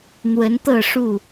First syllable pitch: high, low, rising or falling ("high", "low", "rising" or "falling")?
rising